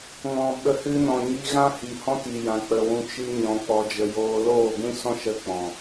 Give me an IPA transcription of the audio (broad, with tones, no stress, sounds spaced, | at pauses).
ŋ ɔ̃˨ ɓ ə˨˦ h ɨ˧ n ɔ̃˨ ɲ i˧ ɣ ã˦ h i˨ h ɔ̃˦ t i˨ j ã˨ k͡p ə˨ w ũ˧ t͡ʃ ɨ˦ ɲ ɔ̃˧ k͡p ɔ˧ d͡ʒ ə˨ j oː˧ l oː˦˨ ɡʷ ĩ˦ s ɔ̃˦ ʃ ə˦ k͡p ɔ̃˨